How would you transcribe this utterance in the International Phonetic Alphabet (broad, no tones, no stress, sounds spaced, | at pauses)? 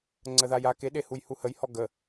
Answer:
ŋ͡ǀ ə ð a j a k e ɗ e h u j h u h ə j h ɔ ɡ ə